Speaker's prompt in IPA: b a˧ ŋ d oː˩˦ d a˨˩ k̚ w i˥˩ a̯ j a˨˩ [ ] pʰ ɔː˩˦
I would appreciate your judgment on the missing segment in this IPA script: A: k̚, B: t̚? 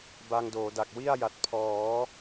B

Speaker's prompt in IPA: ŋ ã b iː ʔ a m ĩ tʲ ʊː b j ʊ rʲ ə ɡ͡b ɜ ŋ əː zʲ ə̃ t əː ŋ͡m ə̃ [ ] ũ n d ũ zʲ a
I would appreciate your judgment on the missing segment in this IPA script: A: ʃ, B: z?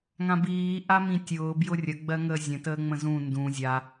B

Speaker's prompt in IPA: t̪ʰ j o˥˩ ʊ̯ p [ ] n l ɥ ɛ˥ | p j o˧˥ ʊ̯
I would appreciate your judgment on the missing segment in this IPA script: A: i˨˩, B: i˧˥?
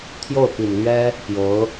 A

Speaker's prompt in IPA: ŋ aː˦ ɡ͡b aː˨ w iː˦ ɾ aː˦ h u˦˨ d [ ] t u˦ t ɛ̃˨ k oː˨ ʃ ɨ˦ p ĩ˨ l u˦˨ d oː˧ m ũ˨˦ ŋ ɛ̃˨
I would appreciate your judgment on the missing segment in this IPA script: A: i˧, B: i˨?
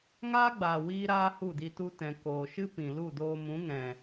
A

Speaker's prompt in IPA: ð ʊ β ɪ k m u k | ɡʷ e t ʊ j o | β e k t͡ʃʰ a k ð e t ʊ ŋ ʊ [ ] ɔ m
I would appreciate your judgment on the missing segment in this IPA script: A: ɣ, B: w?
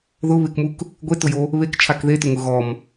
A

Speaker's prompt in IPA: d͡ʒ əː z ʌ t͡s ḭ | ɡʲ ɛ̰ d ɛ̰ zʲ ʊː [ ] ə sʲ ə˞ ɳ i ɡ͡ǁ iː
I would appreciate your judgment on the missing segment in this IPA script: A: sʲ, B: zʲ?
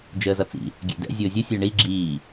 B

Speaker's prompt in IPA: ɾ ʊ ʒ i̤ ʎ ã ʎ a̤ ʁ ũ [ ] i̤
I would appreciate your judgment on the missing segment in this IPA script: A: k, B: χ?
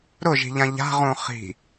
B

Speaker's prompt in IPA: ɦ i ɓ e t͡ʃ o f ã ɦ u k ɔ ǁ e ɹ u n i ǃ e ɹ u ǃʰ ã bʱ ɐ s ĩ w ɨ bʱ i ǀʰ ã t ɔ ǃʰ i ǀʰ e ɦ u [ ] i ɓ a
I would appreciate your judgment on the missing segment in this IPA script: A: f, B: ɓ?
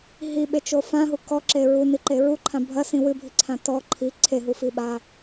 A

